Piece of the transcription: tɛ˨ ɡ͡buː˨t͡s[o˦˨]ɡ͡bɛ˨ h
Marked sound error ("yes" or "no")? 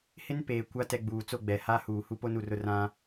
no